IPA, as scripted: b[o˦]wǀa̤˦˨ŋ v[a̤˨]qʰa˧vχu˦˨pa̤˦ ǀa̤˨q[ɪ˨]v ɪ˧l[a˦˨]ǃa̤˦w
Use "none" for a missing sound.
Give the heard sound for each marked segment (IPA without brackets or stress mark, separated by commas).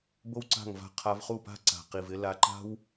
o˦, a̤˧, i˨, a˧